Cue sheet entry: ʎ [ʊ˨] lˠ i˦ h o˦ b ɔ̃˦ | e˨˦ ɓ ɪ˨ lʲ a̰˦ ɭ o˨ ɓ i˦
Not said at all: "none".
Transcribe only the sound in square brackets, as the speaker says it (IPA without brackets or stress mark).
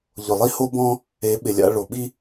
ʊ˨